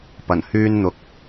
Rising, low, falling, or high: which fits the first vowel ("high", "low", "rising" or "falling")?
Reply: low